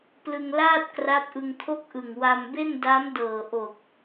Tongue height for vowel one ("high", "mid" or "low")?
high